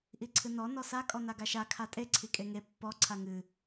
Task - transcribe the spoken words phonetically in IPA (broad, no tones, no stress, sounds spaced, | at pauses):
ʔ i ǀʰ ɨ n ɔ n ɔ s a kʼ ɔ n a ɡ a ʃ a kʰ a tʼ e ǀʰ i kʼ e ŋ e pː ɔ ǀʰ a ŋ ɨ